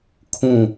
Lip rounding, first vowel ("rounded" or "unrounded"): rounded